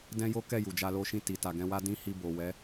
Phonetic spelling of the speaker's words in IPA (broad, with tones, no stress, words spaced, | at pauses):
dɛ̃˦jo˦kɛ˦˨ ju˨d͡ʒa˧lo˦ʃĩ˦˨ ti˨ ta˨ɡɛ̃˧wa˦ dĩ˦hi˧bo˨wɛ˨˦